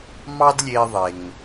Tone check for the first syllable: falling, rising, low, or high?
high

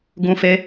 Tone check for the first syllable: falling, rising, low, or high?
high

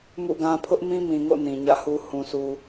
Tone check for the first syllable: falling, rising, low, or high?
falling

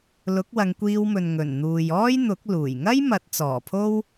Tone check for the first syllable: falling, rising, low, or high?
rising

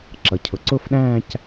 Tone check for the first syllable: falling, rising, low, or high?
low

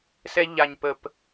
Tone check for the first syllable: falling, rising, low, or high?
high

